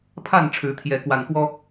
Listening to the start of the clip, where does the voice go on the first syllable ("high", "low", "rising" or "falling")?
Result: falling